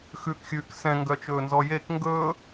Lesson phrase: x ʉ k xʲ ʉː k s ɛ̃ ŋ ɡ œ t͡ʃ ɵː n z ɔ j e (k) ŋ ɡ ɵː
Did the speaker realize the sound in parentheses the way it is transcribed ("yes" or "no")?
yes